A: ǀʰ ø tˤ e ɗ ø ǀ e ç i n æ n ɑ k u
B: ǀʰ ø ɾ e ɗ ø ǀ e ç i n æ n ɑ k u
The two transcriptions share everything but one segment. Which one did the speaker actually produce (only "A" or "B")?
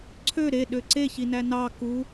B